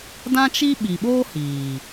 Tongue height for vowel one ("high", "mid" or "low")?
low